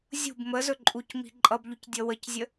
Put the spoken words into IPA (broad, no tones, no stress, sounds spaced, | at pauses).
zʲ ṳ b m ə z ɵ ǃʼ u c m i̤ ǃʼ ʌ b ʎ u c dʲ ʌ w ə c zʲ ə